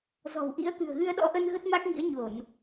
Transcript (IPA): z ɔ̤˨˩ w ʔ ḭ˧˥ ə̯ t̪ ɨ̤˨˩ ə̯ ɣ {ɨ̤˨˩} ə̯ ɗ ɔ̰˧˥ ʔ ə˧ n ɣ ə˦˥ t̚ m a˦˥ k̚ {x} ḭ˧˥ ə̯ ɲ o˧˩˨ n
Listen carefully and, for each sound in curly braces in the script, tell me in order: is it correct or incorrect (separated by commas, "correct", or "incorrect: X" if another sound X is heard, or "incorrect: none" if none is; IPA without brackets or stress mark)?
incorrect: ɨ˧, incorrect: ŋ